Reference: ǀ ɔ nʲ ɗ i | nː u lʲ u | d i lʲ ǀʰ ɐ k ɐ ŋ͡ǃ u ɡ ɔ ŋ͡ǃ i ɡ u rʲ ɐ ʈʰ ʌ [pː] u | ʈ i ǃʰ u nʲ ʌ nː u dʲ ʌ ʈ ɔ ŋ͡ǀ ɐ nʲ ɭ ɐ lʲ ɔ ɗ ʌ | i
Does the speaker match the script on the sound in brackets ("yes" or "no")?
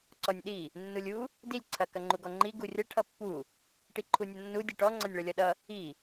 yes